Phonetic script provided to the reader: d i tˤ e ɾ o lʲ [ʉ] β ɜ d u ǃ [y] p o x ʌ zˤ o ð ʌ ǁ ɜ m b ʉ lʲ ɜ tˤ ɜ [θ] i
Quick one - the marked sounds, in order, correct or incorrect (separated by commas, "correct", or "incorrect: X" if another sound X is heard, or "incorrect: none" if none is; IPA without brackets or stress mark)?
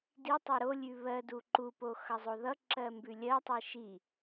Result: correct, incorrect: u, incorrect: ʃ